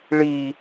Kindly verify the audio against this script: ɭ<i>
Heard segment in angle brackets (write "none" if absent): i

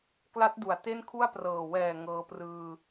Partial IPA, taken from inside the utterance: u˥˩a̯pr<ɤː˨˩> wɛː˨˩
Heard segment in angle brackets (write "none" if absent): ɤː˨˩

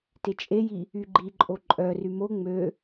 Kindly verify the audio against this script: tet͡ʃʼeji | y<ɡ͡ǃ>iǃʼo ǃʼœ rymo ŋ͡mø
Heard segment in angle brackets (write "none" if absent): ɡ͡ǃ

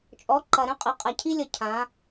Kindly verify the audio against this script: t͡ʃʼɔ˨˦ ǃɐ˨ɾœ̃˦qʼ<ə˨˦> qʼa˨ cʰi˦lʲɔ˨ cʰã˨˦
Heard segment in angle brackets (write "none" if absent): ə˨˦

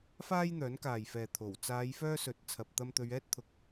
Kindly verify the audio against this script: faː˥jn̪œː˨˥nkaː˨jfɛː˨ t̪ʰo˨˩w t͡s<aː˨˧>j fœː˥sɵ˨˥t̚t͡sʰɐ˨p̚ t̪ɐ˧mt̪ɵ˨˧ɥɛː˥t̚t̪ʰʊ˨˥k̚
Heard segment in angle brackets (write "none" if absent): aː˨˧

